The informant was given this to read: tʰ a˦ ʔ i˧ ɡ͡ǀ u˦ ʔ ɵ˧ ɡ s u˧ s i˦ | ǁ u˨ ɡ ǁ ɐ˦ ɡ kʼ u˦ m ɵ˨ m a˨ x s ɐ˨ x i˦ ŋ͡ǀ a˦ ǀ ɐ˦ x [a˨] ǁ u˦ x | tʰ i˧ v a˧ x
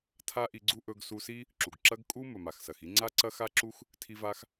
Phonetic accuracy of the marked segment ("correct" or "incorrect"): incorrect